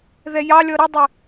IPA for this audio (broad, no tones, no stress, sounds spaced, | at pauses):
ð ɛ j ɑ lʲ ɔ ɾ ɪ dˤ ə